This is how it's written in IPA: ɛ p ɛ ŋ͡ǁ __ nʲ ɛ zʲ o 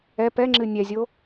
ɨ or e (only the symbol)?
ɨ